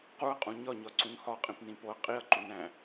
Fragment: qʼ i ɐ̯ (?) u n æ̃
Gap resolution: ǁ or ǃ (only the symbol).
ǃ